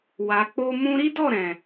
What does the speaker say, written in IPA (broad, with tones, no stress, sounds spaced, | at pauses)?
w a˨ k͡p o˧ m ũ˧ ɾ i˦ d ɔ˦˨ ɾ ɛ̃˨